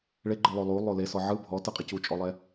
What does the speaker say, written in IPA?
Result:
ɭ e ɡ͡ǃ ɯ lˠ o lˠ u lˠ o l e s ɔ ʕ ɯ bʱ ɔ t ɯ qʼ e c u t͡ʃʼ ɔ lˠ ɛ

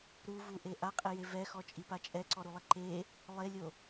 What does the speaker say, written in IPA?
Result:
ɾ u v u ʔ e ʔ a qʼ ɪ j e v ɛ x ɔ t͡ʃʼ i p a t͡ʃʼ ɛ ǀ ɔ ɾ u lˠ ɪ ǃ e | lˠ e lʲ o

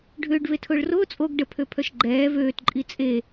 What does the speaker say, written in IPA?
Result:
ɖʱ ʏː ɖ v e tʰ ʊː ɭ r ʊː t͡sʼ o ɡ ɖ ə pʰ ø pʰ œ ʃ ɡ͡ǃ ɛː v øː t ǃʼ i t͡sʼ e

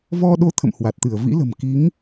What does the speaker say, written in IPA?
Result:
v ɔ˧ ɗ o˨˦ t̪ʰ ə̰˧˨ m h w a˨˩ t̚ t̪ ɨ˧˩ ə̯ v ḭ˧˥ l ə̤˨˩ m k i˨˦ ŋ

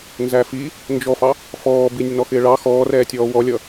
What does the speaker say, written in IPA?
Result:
n z æ f i | n d͡ʒ ɔ f ɑ | f ɔː b i nʲ ə n ɔ x ɪː ɭ ɑ x ɔː r ɛː tʲ ɔː w ɔ lʲ ʌ

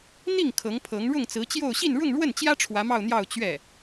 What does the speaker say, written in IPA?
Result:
n̪ i˥˩ ŋ kʰ ɤ˧˥ ŋ pʰ ɤ˧˥ ŋ ɻ ʊ˥˩ ŋ t͡s ɹ̩˧˥ t͡ɕ j o˥˧ ʊ̯ ɕ i˥˧ n ɻ ʊ˥˧ ŋ ɻ w ə˥˩ n t͡ɕ j ä˥ ʈ͡ʂʰ w ä˧˥ m ɑ˥˧ ʊ̯ n̪ j ɑ˥˧ ʊ̯ t͡ɕ ɥ ɛ˥˩

